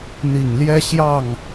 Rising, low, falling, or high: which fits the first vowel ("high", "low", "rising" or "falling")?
low